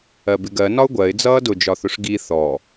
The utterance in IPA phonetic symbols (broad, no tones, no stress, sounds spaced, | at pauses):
ɜ b ɪ ɡ ɜ n ɒ ʊ̯ ɡʷ ɜ ɪ̯ d͡z ʌː d ʊ d͡ʒ ɒ θ ʊ ʂ ɡ i θ ɔ